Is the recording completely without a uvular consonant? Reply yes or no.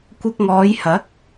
yes